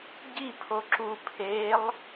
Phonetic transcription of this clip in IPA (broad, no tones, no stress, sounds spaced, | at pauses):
ɟ i pʰ o ǁ u pʰ e lˠ